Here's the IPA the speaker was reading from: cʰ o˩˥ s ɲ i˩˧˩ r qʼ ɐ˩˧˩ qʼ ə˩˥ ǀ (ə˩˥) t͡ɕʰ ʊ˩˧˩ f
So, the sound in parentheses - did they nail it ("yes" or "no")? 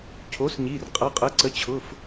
yes